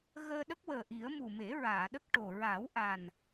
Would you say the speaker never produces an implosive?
no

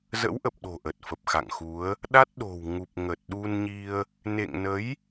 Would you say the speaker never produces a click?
yes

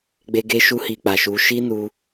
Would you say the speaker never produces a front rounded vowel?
yes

